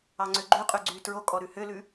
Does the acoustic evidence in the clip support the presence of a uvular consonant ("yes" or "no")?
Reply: yes